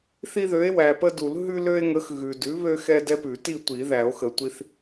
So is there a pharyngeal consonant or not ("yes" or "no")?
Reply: no